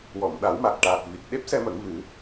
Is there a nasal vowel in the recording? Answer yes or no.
no